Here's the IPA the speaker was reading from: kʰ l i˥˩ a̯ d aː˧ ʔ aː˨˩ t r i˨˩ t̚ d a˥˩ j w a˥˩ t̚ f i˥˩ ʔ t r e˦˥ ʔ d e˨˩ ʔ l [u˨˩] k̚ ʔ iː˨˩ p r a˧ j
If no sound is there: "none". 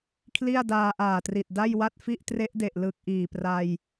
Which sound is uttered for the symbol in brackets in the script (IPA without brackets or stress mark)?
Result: ɯ˨˩